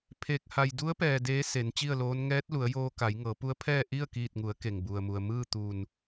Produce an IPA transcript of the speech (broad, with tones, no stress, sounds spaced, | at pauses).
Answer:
pʰ e˧˥ k̚ h a˧ j d u˧˥ ə̯ p ɛː˩ d eː˧˥ s e˩˧ n t͡ɕ i˥˨ ə̯ l oː˧˥ n ŋ ɛː˧˥ t̚ l u˩˧ ə̯ j oː˧ k a˩˧ j ŋ ɤː˩˧ p u˧˥ ə̯ pʰ ɛː˥˨ ʔ i˥˨ ə̯ k iː˧˩ t̚ ŋ u˩˧ ə̯ k e˩ ŋ b u˩ ə̯ m u˩ ə̯ m ɯː˥˨ t̪ u˧˩ n